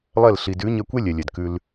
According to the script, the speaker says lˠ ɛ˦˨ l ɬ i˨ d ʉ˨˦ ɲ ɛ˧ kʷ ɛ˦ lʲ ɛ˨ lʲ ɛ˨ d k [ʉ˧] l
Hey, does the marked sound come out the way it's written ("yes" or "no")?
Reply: yes